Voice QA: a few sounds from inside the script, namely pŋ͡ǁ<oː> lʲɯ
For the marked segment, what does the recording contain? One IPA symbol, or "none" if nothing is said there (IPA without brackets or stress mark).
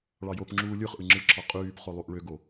uː